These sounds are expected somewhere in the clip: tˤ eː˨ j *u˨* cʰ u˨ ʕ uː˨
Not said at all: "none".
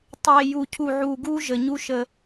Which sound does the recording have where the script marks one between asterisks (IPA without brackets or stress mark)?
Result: u˨